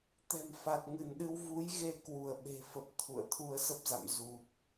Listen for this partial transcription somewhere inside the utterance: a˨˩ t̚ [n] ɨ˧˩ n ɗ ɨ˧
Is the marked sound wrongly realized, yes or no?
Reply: yes